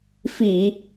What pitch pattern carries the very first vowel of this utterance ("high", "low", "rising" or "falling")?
low